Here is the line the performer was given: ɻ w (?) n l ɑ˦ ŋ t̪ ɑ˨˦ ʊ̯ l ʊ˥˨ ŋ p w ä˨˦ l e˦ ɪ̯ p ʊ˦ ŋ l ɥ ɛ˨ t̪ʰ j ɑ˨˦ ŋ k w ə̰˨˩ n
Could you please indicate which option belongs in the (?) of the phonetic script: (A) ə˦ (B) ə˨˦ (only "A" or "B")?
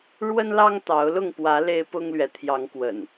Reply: A